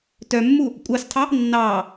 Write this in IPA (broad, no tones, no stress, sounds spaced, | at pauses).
t œ mː u | kʷʼ ɑ s tʰ ɑ | nː ɑː